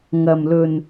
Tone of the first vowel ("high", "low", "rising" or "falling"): low